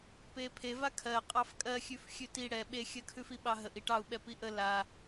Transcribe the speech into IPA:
pepʰe vakʰɜ qʼɑfkʼɜxʲʉf xʲʉti ɽɛ ɓexʲɜkʰʉfi ɓɑɦəʔ iʈɑu̯ ɓɛpiʔə la

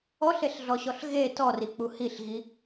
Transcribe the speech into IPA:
ɔɬeɬɮɔɕɔɬ ɣe tɔrik͡pu hiɬɣi

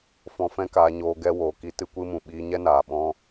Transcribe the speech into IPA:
fɔ̃˧fɛ̃˦kaː˧ɲoː˧ ɡɛ˦woː˨ki˦ tɨ˧kʷɨ˧mũ˨ ɓiː˧ɲɛ˦naː˨ɓɔ̃˦

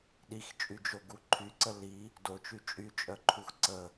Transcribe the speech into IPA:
ɗixt͡ʃʼyd͡ʒoɡu ǃʰyǀə li | dot͡ʃy t͡ʃʼyt͡ʃʼœǃʰux ǀə

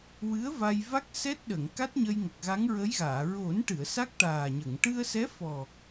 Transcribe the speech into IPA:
wɨ˧˥ə̯va˧jva˦˥k̚ sɛ˦˥t̚ɗə˨˩˨ŋ ka˦˥t̚ɲə˧j ŋə˨˩k̚ɣa˧˥ŋɹə˧˥jɣaː˨˩˨ ɹo˨˩˦nʈɨ˨˩˨ə̯ sa˦˥k̚ ʈaː˨˩ɲə˨˩˨ŋ ʈɨ˧ə̯sɛ˧˥fɔ˨˩

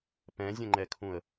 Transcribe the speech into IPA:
pɛ̃zʲə̃ŋ͡ǃɛkʰũə̯

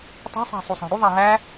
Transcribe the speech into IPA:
tˤæ̤sˤæ̤ sˤusˤæ̤ɽuðˤæ ɦæ

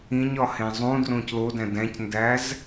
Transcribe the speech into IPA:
ĩɲɒhẽ zˤũdrõc lodæ̃ dæ̃cndæz

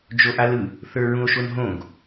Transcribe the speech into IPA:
d͡ʒoʔalɯ | θə˞ɹũo̯ʃonɦõɡ

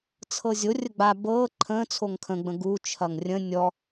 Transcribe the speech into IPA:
t͡sʰɤzʲo rʲəɡ͡ba bɤː ǃʰə̃ː t͡sʰoŋkʰə̃ ɡ͡bə̃ɡu t͡ʃʰɐŋrʲə̃ nʲɔ

